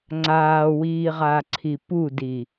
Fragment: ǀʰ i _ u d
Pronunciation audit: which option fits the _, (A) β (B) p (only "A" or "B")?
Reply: B